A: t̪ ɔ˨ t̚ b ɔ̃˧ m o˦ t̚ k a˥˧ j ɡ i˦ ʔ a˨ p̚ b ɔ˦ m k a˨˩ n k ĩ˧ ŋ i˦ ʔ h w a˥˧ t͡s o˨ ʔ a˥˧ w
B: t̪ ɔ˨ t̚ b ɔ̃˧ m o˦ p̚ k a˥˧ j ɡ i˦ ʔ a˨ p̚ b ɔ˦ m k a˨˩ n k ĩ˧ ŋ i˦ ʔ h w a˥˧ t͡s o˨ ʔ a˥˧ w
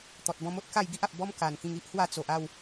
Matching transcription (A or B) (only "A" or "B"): A